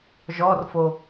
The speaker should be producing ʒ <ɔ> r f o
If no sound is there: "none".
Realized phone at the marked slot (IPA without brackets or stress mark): ɔ